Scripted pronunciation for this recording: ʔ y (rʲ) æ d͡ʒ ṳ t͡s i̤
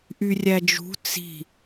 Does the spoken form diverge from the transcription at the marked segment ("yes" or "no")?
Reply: no